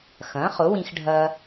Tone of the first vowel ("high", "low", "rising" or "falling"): rising